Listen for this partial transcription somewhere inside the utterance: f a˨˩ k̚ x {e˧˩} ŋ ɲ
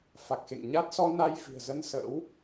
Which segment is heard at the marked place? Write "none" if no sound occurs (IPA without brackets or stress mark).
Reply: ḛ˧˨